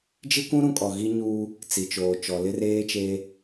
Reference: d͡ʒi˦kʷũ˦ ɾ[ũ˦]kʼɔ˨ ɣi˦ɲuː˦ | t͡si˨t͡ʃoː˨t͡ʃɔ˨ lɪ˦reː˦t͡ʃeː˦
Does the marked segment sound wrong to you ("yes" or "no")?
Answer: no